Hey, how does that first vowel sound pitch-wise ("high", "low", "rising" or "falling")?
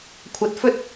low